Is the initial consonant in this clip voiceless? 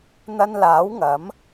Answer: no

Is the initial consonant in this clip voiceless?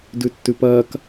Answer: no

